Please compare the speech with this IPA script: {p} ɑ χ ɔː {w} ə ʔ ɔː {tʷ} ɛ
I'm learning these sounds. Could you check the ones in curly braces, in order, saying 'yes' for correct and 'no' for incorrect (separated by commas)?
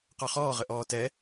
no, no, no